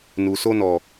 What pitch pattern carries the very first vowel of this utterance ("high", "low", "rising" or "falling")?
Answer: low